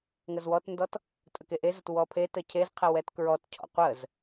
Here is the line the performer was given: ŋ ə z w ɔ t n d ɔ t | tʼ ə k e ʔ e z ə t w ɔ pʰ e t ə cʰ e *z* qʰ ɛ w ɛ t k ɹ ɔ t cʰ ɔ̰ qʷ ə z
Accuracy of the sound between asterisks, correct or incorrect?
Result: correct